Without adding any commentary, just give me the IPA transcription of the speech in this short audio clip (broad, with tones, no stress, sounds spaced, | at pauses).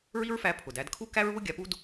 ɹ i˥ ɹ f æ˧ pʰ ʊ˩ d æ˧ d kʰ u˥ k æ˥ ɹ β ʊ˥ ɡʲ a˧ p u˥ d